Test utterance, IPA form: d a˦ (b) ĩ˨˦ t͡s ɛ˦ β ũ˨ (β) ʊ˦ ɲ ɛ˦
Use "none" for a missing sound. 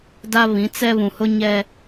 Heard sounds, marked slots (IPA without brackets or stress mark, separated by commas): β, h